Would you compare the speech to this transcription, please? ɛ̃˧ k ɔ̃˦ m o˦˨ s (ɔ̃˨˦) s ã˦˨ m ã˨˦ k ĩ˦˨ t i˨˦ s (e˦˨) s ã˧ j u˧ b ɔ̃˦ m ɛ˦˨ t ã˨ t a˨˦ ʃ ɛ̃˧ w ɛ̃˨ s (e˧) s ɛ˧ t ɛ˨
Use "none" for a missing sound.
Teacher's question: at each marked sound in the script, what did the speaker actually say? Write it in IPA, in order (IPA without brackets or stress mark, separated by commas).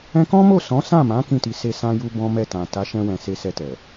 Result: ɔ̃˨˦, e˦˨, e˧